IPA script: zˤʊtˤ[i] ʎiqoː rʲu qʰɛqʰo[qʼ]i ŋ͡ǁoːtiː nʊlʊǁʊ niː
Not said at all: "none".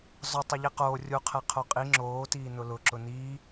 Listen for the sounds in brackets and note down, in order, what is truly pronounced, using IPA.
ɪ, qʼ

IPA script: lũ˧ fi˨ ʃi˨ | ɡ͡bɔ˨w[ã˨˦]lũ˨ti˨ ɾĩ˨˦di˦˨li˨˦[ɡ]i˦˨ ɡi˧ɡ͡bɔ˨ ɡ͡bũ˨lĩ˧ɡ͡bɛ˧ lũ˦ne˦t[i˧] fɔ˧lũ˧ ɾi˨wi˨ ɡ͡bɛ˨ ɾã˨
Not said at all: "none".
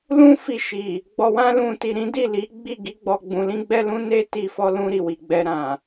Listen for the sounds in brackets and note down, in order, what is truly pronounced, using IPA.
ã˧, ɡ͡b, i˧

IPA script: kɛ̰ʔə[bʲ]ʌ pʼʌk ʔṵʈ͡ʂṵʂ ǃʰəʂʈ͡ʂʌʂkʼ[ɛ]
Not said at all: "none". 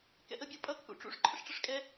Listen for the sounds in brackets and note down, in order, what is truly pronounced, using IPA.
bʲ, ɛ

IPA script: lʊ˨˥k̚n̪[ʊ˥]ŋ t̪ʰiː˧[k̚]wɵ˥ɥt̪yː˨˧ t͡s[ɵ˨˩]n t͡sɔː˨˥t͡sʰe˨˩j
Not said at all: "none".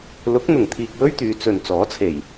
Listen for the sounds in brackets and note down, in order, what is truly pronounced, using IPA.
ʊ˨˩, k̚, ɵ˨

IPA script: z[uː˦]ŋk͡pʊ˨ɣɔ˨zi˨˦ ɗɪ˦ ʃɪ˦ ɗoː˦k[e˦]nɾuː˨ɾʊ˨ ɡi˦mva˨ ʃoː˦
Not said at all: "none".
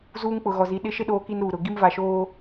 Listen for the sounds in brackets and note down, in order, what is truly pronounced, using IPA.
uː˦, i˦

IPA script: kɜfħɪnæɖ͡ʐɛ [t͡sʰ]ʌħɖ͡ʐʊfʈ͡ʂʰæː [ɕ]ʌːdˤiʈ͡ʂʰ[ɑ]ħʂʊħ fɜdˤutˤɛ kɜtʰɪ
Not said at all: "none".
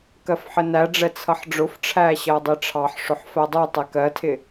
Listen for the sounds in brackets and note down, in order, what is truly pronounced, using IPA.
t͡sʰ, ɕ, ɑ

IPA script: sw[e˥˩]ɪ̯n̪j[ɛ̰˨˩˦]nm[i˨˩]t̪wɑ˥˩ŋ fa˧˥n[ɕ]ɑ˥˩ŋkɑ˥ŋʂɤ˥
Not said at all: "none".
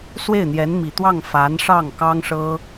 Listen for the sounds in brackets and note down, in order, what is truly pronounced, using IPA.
e˥˩, ɛ˧˥, i˨˩, ʂ

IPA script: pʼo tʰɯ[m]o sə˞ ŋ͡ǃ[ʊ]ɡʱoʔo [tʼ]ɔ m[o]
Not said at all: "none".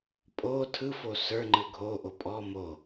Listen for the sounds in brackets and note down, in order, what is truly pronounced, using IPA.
f, ɯ, pʼ, o

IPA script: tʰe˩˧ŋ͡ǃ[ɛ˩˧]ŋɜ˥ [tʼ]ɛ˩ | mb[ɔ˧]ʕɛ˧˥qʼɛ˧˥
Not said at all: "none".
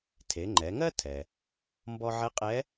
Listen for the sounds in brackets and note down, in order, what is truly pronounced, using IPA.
ɛ˩˧, tʰ, ɔ˧

